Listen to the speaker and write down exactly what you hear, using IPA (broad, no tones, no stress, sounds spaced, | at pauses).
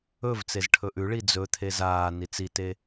ɵ v t͡s e z ʈʰ ɵ ʔ ʉ ɭ i d͡z ɵ t̪ʰ e z aː n i t͡s i t e